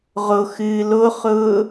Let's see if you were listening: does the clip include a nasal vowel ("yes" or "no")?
no